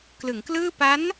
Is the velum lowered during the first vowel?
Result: no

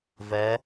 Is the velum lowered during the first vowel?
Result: no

